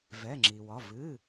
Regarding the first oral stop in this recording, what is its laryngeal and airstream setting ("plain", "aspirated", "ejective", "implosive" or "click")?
click